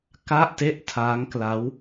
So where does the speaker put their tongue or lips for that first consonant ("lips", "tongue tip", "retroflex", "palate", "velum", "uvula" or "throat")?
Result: velum